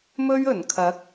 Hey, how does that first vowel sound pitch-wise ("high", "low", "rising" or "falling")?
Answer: high